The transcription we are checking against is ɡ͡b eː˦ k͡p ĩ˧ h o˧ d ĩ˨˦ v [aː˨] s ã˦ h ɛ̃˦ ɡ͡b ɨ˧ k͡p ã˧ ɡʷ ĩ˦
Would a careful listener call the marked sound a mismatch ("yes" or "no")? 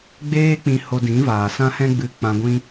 no